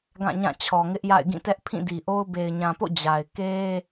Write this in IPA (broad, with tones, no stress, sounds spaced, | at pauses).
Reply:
ɡ ã˦˨ ɲ ã˦˨ t͡ɕʰ ɔ˨ ŋ ɪ˦ ʔ j a̰˦˨ ɪ̯ ɡ ĩ˦˨ t ɛ˦ ʔ pʰ ĩ˦˨ d i˨ ʔ o˦ ʊ̯ b e˨ ɪ̯ ɲ ã˨ p o̰˦˨ d͡ʑ a˨ ɪ̯ k e˦